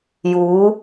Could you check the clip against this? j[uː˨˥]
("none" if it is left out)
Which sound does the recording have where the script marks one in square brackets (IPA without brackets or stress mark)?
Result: uː˨˥